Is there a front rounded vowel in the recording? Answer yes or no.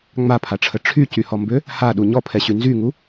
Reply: yes